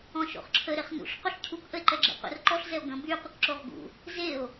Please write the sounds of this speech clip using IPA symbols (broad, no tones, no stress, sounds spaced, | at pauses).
ɔ̃ ʃ o̰ χ ǁʰ ə ɾ e χ n ṵ ɬ q u ɬ cʰ u k ʔ ə e̯ ǃ ɛ ɡ͡ǁ ḛ qʷ ə̰ r ǃ ɔ ɬ z ɛ o̯ ɡ ə̃ b y qʷ ə k ǁ o ʁ ɡ ṵ | z e o̯